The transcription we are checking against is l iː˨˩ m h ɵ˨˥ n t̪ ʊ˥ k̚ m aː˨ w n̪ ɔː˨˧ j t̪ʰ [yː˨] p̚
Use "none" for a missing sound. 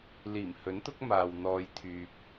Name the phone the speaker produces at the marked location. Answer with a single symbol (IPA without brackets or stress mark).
yː˨